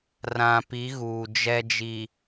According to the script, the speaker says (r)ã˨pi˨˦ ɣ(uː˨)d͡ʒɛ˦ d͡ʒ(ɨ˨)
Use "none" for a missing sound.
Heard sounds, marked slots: r, uː˨, i˨

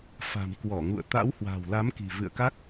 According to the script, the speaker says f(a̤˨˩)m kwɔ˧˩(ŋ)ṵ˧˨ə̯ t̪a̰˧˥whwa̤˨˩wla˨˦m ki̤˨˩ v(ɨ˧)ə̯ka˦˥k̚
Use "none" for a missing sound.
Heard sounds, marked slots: a̤˨˩, ŋ, ɨ̰˧˨

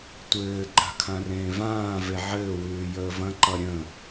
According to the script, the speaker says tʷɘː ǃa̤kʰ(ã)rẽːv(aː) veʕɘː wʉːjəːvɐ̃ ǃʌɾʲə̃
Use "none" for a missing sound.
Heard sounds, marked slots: ã, ãː

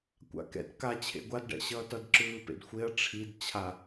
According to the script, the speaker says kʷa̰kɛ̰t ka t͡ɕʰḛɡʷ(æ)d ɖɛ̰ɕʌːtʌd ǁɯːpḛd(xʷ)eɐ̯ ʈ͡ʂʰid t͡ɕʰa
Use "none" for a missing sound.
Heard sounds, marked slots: a, xʷ

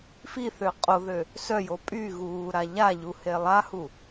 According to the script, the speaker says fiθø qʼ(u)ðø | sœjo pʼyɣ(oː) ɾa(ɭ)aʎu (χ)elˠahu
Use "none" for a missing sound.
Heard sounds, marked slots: o, uː, ʎ, h

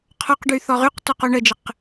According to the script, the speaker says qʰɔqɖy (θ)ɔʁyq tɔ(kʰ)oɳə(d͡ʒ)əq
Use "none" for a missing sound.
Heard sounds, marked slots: θ, q, d͡ʒ

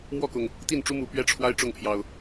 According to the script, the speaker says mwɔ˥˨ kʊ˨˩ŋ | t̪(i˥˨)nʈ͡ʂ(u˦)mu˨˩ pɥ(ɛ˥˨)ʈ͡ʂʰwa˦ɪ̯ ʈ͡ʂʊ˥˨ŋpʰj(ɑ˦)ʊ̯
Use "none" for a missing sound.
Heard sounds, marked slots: i˥˨, u˦, ɛ˦, ɑ˨˩

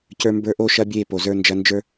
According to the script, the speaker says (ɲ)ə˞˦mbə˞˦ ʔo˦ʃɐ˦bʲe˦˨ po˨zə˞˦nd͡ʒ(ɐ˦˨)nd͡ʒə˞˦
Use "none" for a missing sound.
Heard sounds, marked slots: c, ɐ˦

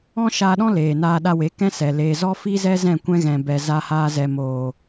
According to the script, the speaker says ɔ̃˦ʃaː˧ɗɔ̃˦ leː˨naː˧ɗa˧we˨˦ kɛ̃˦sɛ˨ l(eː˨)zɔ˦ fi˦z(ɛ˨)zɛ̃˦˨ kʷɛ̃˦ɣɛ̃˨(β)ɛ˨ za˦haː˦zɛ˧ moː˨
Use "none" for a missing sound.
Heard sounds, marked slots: eː˨, ɛ˦, b

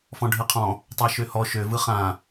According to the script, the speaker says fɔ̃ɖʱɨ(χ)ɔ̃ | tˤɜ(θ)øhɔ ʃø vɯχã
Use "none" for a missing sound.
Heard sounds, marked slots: qʰ, ʃ

